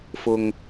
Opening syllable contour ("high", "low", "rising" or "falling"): low